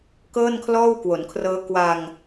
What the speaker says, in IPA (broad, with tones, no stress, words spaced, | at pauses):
kɤː˥˩nkʰlɔː˥˩wkwo˩˦nkʰrɤː˦˥ kwa˧ŋ